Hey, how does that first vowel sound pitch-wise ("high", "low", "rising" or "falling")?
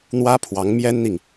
high